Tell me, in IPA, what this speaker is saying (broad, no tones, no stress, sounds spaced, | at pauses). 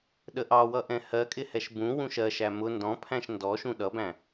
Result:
ɗ ə ʔ ɑ w ʌ ʔ ɛ̃ h ɜ kʼ ɪ h ɛ ʃ b ũ w ũ ʃ ɜ ʃ æ m ʊ n d ɔ̃ pʰ æ̃ ʃ n d ɔ ʃ ũ ɗ ʌ b æ̃